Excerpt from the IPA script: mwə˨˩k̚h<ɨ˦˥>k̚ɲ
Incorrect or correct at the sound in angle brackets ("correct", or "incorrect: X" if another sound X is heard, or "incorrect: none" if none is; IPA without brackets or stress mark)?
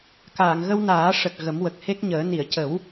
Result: incorrect: e˦˥